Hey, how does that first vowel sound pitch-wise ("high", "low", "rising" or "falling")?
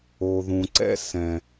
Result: low